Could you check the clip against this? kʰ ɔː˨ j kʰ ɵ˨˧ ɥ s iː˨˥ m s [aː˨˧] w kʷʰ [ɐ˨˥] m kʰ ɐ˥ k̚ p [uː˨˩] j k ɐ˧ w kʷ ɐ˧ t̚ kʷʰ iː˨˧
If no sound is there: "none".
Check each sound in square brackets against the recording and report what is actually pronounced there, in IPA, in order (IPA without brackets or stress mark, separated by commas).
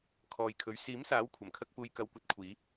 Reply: aː˨˥, ɐ˨˩, uː˧